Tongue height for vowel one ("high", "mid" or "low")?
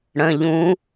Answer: mid